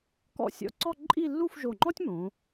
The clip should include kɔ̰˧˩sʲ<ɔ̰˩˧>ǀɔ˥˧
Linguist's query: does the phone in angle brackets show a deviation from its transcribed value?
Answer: yes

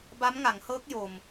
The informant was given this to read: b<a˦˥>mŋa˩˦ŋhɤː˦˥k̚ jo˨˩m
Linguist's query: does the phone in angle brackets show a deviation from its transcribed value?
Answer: no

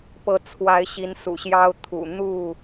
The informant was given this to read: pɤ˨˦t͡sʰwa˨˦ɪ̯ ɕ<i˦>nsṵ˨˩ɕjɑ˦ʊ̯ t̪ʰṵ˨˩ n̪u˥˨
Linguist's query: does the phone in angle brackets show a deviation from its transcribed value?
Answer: yes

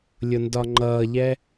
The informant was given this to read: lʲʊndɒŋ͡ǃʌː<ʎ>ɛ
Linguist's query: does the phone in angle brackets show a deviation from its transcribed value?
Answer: no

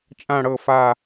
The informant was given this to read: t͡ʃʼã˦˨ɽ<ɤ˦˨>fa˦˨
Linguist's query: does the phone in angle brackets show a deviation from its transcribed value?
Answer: no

